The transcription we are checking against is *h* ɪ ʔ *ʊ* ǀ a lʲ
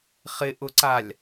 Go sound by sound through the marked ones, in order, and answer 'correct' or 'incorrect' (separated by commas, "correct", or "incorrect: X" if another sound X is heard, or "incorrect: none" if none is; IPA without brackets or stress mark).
incorrect: χ, correct